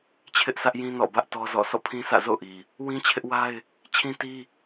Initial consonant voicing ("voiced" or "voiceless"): voiceless